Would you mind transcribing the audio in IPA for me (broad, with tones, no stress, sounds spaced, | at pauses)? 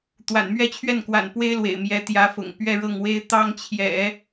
t̪ w a̰˨˩ n m ɥ ɛ˥˧ t͡ɕʰ ɥ ɛ˥˩ n k w a̰˨˩ n p w e˥ ɪ̯ l w ḛ˨˩ ɪ̯ m j ɛ˧˥ t̪ j ä˧˥ f ʊ̰˨˩ ŋ p ɥ ɛ˥˧ ɻ ɤ˥˩ ŋ w e˥ ɪ̯ t̪ ɑ˥ ŋ t͡ɕʰ j ɛ̰˨˩˦